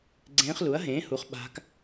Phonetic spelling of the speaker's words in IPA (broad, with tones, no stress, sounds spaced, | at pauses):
ɡ͡ǀ ẽː˧˥ χ l u˩˥ ɐ̯ ɦ ẽː˩˥ h u˩˥ χ ɓ a̤˧˥ k